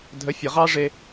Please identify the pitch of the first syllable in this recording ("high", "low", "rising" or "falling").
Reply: rising